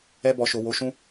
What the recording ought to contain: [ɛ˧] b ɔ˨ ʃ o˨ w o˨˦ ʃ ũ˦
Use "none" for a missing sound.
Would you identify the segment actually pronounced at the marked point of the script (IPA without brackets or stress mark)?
ɛ˧